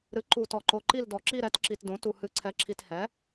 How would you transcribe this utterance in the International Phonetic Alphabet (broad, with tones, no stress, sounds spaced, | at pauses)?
ɾ ɨ˩˥ ǃ u˨˩ t ɔ˨˩ ǃ o˨˩ ǃ i˦˨ l d ɔ˨˩ ǁ i˦˨ ɾ ɛ˩˥ t ǁ i˨˩ t d õ˩˥ t u˨˩ h ɨ˨˩ ǀʰ ɛ˩˥ ǁʰ i˨˩ t h ɛ˩˥